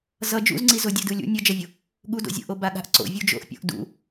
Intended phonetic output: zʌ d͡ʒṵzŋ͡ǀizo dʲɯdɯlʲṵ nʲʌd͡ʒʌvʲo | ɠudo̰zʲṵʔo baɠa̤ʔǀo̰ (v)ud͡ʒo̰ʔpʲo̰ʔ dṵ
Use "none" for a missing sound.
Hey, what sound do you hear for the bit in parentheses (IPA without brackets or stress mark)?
vʲ